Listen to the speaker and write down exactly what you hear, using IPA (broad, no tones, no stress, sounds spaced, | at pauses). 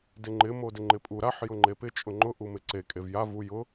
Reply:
d ɪ ŋ͡ǃ ɪ m o d ɪ ŋ͡ǃ ɪ pʼ u ɾ a ħ j ʊ ŋ͡ǃ e p ɪ t͡ʃʼ ʊ ŋ͡ǃ ʊ ʔ u m ɪ ǀ e kʼ e v j a v u j ʊ